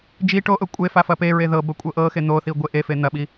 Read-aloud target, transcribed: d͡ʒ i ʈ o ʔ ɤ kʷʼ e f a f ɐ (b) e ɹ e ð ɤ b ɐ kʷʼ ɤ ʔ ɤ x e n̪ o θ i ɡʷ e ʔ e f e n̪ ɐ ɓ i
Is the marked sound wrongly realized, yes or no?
yes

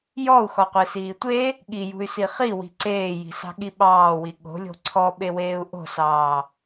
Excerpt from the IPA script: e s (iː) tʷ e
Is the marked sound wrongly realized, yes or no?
no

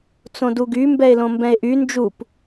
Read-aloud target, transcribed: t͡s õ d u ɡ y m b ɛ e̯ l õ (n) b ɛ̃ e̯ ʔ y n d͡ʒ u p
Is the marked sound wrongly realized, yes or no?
yes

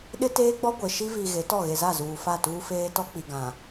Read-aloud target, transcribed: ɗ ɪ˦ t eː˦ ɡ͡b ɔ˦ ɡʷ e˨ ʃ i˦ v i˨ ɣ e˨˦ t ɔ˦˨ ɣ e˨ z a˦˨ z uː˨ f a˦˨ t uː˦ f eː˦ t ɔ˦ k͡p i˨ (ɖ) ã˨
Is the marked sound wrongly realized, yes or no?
yes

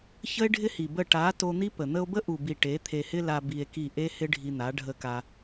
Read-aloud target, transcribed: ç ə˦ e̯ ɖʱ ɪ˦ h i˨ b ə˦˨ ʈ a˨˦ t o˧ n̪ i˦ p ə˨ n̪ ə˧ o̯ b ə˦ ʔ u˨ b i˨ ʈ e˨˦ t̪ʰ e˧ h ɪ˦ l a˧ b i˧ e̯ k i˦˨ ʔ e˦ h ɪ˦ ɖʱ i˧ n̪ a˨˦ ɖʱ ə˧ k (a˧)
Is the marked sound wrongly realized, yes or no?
no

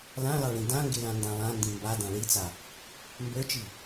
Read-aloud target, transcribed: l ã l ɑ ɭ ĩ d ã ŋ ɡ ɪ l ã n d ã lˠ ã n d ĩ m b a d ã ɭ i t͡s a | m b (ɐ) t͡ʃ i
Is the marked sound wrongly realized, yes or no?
yes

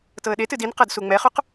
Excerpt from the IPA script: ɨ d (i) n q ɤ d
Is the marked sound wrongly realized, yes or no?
no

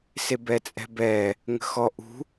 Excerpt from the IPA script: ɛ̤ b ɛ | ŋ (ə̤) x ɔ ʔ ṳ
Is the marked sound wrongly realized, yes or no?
no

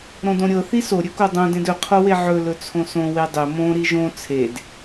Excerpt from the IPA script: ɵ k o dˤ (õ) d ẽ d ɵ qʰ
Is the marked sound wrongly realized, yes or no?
no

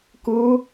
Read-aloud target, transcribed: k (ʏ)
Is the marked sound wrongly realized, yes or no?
yes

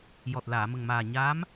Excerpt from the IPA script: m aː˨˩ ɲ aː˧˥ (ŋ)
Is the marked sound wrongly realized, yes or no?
yes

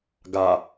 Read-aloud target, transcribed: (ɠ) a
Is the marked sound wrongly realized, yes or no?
yes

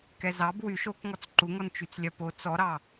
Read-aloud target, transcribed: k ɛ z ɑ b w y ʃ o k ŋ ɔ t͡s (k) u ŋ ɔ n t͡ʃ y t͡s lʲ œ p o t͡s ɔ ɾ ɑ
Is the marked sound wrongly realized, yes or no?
yes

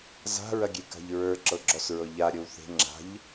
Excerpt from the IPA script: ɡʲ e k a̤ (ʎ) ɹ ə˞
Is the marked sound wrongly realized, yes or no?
no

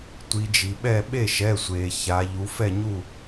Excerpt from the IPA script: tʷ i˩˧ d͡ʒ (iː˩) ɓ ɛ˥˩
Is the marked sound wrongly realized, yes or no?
yes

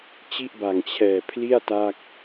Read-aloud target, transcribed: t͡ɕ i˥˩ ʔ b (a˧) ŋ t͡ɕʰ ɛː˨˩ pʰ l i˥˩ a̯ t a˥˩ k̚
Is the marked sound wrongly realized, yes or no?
yes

